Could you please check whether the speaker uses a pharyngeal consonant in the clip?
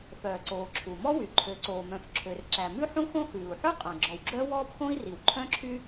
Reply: yes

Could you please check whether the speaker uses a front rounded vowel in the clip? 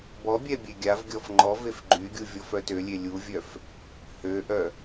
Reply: yes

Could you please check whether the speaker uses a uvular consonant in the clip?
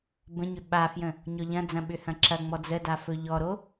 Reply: no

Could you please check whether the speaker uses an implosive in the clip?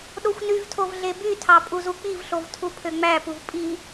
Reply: yes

